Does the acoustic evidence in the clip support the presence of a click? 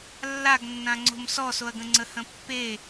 yes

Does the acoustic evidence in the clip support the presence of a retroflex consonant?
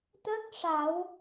yes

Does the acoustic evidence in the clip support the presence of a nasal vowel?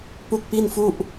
no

